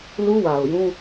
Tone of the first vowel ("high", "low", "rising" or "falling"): high